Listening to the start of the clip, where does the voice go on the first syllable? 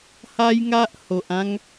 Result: high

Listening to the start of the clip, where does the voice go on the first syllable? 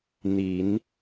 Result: low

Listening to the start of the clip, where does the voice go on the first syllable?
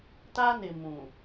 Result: high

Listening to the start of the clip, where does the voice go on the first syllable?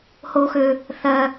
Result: high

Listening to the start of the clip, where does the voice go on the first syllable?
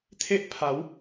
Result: high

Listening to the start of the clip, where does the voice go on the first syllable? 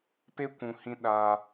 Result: high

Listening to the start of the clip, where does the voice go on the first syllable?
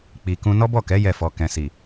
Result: low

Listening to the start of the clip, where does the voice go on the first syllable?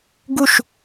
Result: falling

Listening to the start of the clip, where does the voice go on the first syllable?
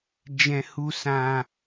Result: high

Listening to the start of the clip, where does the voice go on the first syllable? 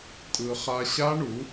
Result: high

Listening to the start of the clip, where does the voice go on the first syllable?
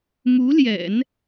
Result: rising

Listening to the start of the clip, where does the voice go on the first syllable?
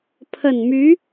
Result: low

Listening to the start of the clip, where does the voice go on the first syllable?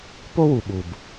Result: high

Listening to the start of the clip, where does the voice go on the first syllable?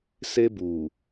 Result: high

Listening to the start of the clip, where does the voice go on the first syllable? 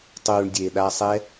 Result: low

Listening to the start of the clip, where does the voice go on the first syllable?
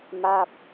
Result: falling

